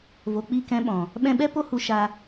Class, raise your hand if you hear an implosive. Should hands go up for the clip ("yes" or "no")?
yes